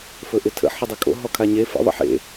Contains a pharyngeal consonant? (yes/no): yes